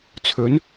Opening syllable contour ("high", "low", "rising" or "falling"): rising